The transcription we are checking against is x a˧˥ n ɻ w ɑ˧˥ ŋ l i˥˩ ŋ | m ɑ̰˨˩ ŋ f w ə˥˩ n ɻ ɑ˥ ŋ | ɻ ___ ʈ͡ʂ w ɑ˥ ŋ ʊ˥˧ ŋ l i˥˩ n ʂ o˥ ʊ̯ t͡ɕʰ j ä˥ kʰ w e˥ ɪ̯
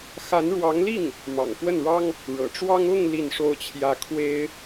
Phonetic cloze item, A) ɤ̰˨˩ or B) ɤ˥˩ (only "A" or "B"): A